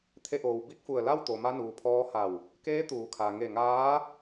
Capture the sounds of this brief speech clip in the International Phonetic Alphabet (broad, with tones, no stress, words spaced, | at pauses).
t̪ʰe˧ʔoː˩w bi˧˥k̚fu˧˩ə̯la˥˨w t̪o˩ma˧nuː˩pʰɔː˧ ha˧˩w | keː˧˥t̪uː˩˧kʰa˩ ŋe˧˩ŋaː˧˥